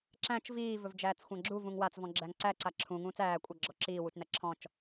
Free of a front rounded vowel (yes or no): yes